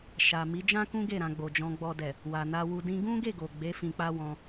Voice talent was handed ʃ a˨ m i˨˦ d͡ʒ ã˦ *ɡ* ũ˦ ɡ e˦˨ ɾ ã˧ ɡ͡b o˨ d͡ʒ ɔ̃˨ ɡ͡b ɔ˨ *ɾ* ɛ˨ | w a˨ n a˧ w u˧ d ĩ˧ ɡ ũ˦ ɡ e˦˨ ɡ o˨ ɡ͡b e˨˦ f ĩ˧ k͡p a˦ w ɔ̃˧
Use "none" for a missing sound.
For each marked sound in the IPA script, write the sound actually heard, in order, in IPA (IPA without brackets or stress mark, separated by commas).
k, d